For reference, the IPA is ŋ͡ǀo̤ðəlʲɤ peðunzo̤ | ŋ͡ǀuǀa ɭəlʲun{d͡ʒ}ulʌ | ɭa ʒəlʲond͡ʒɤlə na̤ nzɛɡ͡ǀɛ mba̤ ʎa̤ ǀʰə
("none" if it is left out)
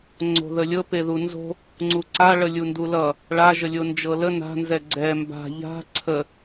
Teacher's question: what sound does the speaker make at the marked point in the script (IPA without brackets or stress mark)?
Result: d